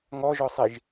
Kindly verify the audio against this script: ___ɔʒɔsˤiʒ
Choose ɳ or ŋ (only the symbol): ŋ